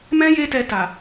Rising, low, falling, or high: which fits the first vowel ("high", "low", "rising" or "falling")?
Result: high